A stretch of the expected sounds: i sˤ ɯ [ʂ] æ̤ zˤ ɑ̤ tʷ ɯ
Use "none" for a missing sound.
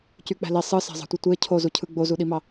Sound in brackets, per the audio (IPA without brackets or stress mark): s